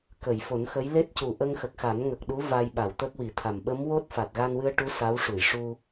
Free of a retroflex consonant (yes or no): no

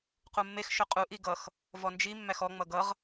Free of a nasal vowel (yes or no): yes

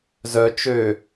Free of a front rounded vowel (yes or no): no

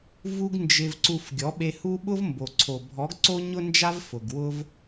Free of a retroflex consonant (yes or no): yes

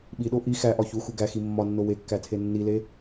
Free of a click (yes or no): yes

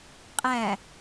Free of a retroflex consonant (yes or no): yes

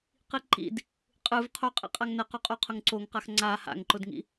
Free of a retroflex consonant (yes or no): yes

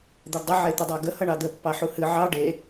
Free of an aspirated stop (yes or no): yes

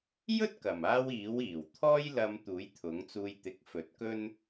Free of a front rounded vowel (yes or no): yes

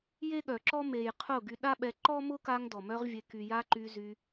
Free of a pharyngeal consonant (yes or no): yes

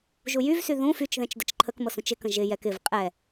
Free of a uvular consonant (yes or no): no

